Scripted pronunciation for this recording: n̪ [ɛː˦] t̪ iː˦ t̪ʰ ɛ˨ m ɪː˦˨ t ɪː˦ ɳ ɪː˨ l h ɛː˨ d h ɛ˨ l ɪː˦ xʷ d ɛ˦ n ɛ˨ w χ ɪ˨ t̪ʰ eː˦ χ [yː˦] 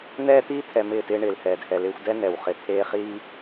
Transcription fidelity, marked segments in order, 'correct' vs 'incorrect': correct, incorrect

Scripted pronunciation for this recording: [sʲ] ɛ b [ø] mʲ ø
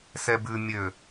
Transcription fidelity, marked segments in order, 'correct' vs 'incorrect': incorrect, incorrect

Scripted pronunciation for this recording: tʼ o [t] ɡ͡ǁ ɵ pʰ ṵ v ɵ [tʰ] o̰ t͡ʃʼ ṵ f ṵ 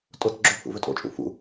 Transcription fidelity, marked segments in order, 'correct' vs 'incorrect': correct, incorrect

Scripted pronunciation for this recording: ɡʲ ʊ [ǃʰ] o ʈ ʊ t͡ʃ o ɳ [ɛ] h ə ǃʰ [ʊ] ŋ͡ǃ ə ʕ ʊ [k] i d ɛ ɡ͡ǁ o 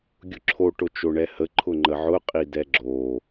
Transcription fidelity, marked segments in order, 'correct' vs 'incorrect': incorrect, correct, correct, incorrect

